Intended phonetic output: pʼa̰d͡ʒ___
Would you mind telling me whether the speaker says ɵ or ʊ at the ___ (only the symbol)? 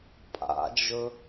ɵ